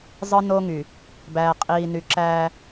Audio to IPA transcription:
zˤ ɯ˦ n oː˦ ŋ y˨ | b æː˨ qʼ iː˨ n y˨ ǁ æː˦

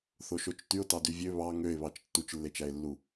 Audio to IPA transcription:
θ o ʃ o t͡ʃ t y ʊ̯ t ɑ d y vʲ ø β ɑ ŋ ø ɪ̯ β ɑ t͡ʃ tː u t͡ʃ lː e t͡ʃ æ ɪ̯ lː u

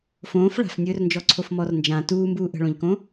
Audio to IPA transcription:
f õː f ɭ a̤ f nʲ ɵː r n d͡ʒ ɔ ǀʰ o f m ɔ r n d͡ʒ ã t uː m b uː ʔ ə̤ ɭ õ ʎ k õ

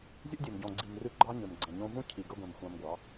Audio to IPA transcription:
zʲ o̰˦ dʲ e˨ m ɟ ɔ̃˨ ɡ͡ǀ i˨ m r ʉ˧ ɡ͡ǃ ɑ˦ ɲ ø˨ m ɡ͡ǀ ɛ̃˨ ɲ õ˧ v ũ˦ cʰ i˨ ɡ ɵ˧ ɡʷ ɛ̃˨ m xʷ ɑ̃˧ m ɡʷ ɑ˨˦

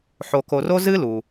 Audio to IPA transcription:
ħ o˨ k o˨ r o˥ z ɨ˥ l u˩

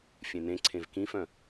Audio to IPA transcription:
fʲ ẽ n ẽ ǀʰ ẽ v k ĩ f œ̃

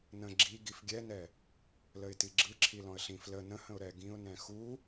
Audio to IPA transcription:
n ə̃ ɡ͡ǁ i ɡ i f ɡʲ ɛ n ɛ | l ə ɪ̯ t i ɡ͡ǁ ɯ ǁʰ i l ɔ̃ ə̯ ɬ ĩ f l ə n ə̃ h ə̃ ʊ̯ ɾ ɛ ɡ ĩ ʊ̯ n ɛ̃ x u

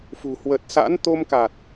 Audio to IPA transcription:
f ṳ˨˩ h w ə˨˩ t̚ s a̰˧˥ n t̪ o˧ m k a˨˩ t̚

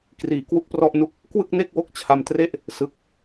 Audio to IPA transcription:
k r iː˩˦ k w u˥˩ k̚ p r ɔ˥˩ ʔ n u˥˩ k̚ | k w ɯ˥˩ k̚ n e˥˩ k̚ w o˦˥ k̚ t͡ɕʰ a˧ m t r e˥˩ ʔ | s ɯ˨˩ k̚

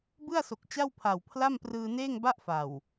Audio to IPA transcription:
b ɯ˥˩ a̯ s o˨˩ k̚ t͡ɕ a˥˩ w pʰ a˨˩ w pʰ l a˥˩ m p r ɯː˧ n eː˥˩ ŋ b a˥˩ ʔ f a˨˩ w

